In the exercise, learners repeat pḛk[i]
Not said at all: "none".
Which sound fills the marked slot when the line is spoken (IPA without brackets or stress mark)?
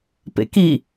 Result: i